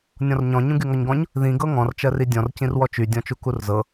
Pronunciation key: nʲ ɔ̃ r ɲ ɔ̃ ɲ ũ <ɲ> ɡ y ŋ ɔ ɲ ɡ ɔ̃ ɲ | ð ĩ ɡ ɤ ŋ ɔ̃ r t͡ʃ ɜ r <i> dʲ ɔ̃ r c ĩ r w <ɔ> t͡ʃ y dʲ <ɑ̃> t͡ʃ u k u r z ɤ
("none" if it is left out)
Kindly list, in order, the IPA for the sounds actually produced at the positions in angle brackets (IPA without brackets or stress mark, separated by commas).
none, i, ɔ, ɔ̃